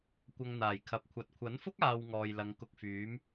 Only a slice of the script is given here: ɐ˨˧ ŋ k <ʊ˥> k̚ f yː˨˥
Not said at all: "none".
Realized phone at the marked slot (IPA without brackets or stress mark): ʊ˧